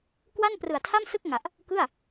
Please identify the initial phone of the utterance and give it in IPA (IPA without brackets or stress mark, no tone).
k